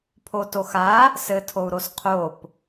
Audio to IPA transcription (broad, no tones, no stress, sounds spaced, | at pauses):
pʰ o t o x a | s ɘ tʰ o u̯ ɾ o s qʰ o p